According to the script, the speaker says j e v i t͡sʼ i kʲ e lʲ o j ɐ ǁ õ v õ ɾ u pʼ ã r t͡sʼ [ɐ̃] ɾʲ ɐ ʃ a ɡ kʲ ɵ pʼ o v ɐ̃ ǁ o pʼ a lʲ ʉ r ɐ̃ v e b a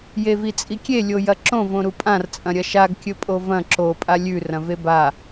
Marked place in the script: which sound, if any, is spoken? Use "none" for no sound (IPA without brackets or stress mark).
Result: ɐ̃